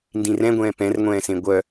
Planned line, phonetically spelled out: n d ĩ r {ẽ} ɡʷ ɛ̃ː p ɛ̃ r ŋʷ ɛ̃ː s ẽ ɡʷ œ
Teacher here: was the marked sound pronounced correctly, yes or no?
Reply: no